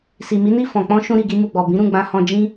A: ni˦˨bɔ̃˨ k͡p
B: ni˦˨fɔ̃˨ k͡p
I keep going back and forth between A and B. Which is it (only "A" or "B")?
B